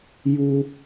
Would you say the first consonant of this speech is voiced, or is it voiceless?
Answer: voiced